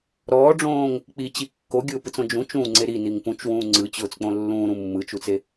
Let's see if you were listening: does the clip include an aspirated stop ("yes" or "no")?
no